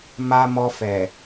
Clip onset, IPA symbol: m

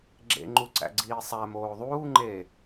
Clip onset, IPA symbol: ɡ͡ǁ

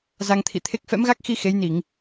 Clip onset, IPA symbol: z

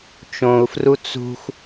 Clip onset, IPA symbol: t͡ʃ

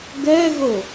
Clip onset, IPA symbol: ɡ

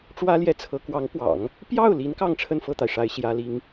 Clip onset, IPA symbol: ʈ͡ʂ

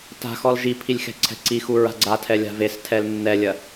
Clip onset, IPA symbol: t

